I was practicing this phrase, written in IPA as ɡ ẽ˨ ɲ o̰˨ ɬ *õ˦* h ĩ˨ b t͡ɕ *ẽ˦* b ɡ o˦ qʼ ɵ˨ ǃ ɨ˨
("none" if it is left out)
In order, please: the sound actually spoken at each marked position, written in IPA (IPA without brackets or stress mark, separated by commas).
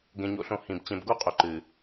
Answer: õ˨, ẽ˨